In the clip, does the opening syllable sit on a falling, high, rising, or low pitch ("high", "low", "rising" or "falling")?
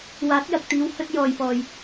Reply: rising